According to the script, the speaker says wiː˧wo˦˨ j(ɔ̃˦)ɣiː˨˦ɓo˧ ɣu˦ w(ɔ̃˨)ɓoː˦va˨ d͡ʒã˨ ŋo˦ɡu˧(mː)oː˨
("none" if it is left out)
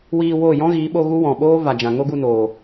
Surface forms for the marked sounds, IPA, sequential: ɔ̃˦, ɔ̃˨, n

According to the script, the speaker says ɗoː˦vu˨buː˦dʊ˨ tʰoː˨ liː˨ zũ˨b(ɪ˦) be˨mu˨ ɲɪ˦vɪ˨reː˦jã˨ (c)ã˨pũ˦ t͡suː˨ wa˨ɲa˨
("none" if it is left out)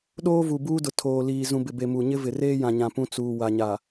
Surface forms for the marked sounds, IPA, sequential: ɪ˨, ɲ

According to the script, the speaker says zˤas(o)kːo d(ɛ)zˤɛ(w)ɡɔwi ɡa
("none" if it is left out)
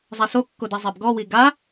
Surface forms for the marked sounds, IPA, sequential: o, ɛ, b

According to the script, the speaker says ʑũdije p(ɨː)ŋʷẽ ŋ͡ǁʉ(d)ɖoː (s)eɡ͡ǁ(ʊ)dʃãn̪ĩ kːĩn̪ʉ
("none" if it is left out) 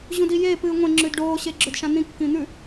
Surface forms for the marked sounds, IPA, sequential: ɨː, d, ɕ, ɵ

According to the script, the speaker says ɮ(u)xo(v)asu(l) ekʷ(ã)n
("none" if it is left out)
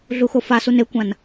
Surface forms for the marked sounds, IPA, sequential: u, f, n, ã

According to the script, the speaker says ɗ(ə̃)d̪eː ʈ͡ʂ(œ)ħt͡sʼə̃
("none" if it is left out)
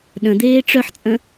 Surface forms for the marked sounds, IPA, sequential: ə̃, œ

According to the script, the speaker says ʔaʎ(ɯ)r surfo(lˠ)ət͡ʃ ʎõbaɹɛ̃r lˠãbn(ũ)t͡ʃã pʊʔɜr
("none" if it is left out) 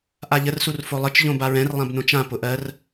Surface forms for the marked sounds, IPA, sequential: ə, lˠ, õ

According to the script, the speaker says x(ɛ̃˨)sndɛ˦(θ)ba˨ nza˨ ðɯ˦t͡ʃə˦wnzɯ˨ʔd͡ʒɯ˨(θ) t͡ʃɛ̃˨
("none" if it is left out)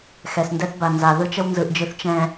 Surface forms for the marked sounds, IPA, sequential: ɛ˨, θ, θ

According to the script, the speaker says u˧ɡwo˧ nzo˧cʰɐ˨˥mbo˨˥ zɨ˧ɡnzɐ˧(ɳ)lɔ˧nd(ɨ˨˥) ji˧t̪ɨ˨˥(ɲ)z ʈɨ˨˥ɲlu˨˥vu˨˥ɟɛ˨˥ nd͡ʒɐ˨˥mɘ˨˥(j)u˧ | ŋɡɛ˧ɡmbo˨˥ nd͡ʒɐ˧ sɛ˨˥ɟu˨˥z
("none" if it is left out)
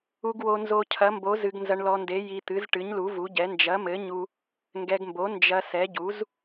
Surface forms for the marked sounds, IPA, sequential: ɳ, e˨˥, none, ɲ

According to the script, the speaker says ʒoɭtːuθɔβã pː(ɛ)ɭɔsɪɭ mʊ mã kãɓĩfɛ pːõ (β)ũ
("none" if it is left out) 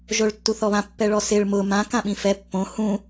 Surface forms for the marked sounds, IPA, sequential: ɛ, h

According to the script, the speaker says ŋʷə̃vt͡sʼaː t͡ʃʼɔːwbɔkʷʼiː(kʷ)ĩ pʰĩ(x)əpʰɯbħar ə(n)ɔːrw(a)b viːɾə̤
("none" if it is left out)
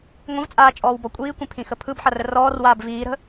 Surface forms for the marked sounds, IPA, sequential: kʷ, x, r, aː

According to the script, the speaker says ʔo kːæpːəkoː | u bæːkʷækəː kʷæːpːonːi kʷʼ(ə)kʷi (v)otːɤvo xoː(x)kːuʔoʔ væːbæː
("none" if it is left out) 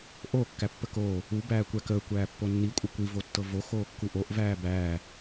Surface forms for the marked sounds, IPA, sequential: ə, v, none

